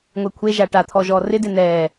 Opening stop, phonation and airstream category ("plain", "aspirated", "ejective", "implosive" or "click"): aspirated